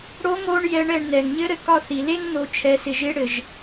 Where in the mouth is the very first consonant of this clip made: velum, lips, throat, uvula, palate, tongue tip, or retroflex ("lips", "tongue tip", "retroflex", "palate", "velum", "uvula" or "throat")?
retroflex